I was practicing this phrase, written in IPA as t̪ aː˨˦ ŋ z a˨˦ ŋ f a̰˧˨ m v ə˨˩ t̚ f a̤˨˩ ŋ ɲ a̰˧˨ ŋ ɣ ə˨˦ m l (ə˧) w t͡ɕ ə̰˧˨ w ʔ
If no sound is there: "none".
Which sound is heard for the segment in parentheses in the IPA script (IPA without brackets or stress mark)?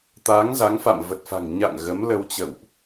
ə˧